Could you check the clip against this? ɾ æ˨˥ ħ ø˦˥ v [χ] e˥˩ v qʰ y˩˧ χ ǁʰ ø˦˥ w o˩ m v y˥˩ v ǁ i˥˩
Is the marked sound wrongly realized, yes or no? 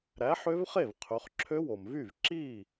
no